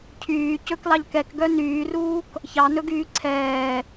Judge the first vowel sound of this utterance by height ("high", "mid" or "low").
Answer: high